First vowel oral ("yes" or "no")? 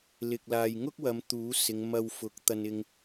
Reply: yes